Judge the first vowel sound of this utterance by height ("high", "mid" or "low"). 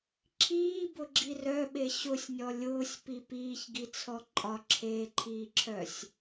high